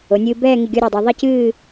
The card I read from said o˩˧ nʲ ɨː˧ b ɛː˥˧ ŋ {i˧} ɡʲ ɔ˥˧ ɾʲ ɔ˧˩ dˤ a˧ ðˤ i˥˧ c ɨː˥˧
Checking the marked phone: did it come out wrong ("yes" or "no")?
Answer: yes